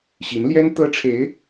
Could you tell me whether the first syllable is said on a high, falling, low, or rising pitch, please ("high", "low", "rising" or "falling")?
rising